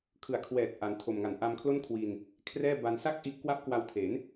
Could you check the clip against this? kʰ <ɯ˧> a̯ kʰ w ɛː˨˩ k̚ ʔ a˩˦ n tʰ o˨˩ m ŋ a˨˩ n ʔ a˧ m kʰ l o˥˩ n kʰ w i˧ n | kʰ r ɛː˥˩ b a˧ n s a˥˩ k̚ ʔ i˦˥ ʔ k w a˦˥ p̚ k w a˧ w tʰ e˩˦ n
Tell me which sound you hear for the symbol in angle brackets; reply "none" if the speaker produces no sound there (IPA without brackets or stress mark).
ɯ˨˩